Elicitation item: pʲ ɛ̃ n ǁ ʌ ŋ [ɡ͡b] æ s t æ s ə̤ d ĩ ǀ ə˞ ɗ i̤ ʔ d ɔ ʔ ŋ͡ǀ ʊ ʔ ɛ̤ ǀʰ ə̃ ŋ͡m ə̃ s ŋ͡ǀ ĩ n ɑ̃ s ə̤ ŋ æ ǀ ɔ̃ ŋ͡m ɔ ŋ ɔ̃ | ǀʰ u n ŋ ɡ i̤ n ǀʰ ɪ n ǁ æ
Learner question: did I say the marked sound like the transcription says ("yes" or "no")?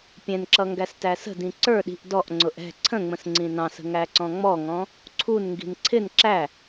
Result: no